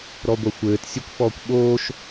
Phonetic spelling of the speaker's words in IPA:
ɾ ɔ ɡʷ ɐ xʷ ɘː t sʲ ɨ kʷ f ɔː kʷ ɓ oː ʃ

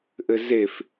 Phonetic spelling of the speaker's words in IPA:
ʔ ɘ z e f

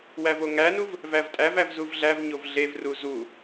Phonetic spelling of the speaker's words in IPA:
w æ v o ŋ æ n u v | v æ v tʼ æ v æ v z u v ɮ æ v ɲ o v ɮ e v r u z u

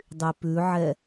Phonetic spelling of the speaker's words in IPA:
dˤ y p ʉ ʕ ɛ

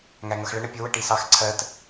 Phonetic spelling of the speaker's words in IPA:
ŋ æ ŋ ʌ x ɭ ə ɳ ə pʲ ʊ w ə ʈ i s ɑ x ǀʰ ɜ t

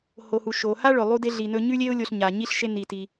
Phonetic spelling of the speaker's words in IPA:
h o˩ h u˩ ʃ o˩ h a˧ ɭ ɵ˩ lˠ u˧ d e˧ ɮ i˩ n ɵ˧ ɲ ʉ˥ lʲ e˥ ʊ̯ lʲ o˧ ɬ ɲ a˩ ɲ i˥ ɬ ʃ e˧ n i˩ t i˩

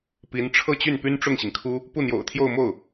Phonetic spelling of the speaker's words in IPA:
p i˧˥ n ʈ͡ʂʰ ɤ˥˧ t͡ɕ y˥˩ n p y˥ n ʈ͡ʂ ʊ˥˩ ŋ ɕ i˩ ŋ kʰ u˥ | p u˥˩ n̪ j o̰˨˩ ʊ̯ t̪ʰ j o˥˧ ʊ̯ m o˥˩ ʊ̯

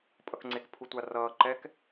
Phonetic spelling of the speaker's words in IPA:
pʼ ʌ k ŋ͡ǀ e k pʰ u tʷ a r ʌː ǃ ɛ k

